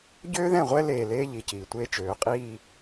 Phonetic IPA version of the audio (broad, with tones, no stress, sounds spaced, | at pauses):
ɟ øː˦ ð ɛ̃˦˨ ʁʷ ɛ˦ l eː˨ l eː˦ ʎ i˨ c iː˨ tʷ eː˦ t͡ʃ øː˨˦ qʼ iː˦